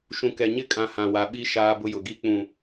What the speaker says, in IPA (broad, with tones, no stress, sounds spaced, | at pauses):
ʃ ũ˨ k ɛ˨ ɲ ɪ˦ kʼ ã˨ h ã˨ w a˨ ɓ i˦ ʃ aː˦ b ʊ˦ j ʊ˨ ɡ i˦ k͡p ũ˨